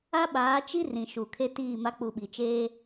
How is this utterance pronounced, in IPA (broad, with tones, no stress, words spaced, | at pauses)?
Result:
a˦ɓaː˨˦t͡ʃi˦ rĩ˨ʃu˨kʰe˦ tiː˦˨ma˦ k͡pu˨ɓi˨t͡ʃeː˦